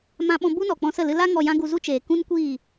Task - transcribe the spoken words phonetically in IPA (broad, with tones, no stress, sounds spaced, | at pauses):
m ã˧ ɓ ɔ̃˧ b u˦ n ɔ˨ k͡p ɔ̃˧ s ə˦˨ l ɨ˧ l a˦ ŋ ɔ˧ j ã˦ ɡ u˧ z u˦ t͡ʃ eː˨ k ũ˦ n kʷ iː˦˨